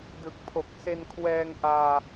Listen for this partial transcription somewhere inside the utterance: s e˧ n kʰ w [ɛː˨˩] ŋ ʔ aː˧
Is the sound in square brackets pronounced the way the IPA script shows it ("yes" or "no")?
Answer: no